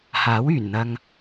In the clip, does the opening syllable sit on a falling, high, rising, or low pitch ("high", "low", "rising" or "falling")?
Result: rising